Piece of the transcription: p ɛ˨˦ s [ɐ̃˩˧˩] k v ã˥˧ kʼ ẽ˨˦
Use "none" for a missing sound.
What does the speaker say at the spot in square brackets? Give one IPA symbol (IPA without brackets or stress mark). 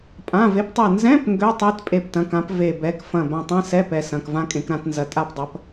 ɐ̃˩˧˩